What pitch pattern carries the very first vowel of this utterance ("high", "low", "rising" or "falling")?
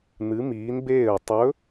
rising